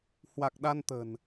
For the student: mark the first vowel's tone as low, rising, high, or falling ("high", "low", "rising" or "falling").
low